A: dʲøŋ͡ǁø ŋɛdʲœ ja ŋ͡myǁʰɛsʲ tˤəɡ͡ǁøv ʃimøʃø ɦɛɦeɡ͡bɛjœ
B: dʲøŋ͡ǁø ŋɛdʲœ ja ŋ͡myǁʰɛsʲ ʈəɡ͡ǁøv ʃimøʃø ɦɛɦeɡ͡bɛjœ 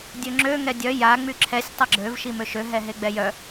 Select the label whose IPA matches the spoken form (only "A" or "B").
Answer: A